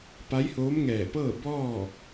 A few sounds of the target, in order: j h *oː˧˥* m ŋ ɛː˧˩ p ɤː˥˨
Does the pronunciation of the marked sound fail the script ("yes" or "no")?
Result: no